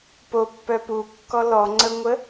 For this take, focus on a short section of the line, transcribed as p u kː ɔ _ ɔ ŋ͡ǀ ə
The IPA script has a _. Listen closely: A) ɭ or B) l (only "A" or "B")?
B